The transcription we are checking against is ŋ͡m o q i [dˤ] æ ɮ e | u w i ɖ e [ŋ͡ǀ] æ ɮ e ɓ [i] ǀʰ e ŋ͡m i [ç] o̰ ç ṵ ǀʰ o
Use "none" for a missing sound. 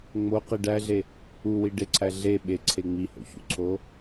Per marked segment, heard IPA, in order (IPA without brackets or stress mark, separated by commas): ɖ, ǀʰ, e, h